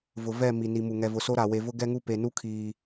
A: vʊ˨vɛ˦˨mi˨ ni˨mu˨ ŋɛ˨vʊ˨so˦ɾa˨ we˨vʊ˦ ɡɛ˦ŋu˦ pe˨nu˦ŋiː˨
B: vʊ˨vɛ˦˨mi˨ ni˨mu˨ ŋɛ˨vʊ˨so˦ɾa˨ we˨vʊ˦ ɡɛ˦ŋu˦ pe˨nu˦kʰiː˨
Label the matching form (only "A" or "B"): B